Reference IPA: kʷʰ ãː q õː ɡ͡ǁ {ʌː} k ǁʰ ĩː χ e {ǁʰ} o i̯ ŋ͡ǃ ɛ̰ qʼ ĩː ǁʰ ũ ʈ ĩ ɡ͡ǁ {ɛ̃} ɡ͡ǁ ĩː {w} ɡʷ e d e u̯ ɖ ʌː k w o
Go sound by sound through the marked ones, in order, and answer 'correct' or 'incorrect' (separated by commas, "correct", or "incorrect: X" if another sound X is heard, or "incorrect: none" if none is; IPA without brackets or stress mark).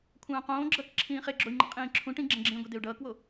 incorrect: ʌ, incorrect: ɡ͡ǁ, correct, incorrect: none